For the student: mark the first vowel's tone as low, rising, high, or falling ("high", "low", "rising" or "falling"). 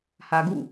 low